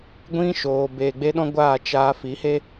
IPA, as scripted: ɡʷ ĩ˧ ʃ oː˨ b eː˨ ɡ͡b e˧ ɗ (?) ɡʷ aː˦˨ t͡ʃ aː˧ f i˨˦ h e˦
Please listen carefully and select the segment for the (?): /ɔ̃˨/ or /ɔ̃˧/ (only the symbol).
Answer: ɔ̃˧